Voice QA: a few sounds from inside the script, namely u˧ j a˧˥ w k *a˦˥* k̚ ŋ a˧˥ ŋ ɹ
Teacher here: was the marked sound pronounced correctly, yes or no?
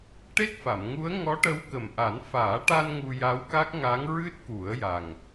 yes